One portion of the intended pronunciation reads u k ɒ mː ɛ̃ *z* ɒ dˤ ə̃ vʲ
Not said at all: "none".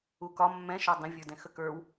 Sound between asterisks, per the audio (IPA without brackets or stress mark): ʃ